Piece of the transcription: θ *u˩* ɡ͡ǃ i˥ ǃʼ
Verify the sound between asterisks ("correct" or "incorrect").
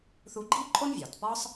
incorrect